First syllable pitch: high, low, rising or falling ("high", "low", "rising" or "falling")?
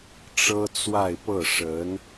high